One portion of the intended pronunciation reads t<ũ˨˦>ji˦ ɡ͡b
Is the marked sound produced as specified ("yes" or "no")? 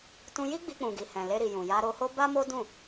no